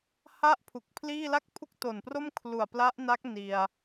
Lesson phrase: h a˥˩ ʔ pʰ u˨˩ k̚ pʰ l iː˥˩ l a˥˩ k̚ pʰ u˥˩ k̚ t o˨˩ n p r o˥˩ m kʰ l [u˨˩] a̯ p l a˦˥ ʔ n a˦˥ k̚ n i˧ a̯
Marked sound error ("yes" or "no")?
no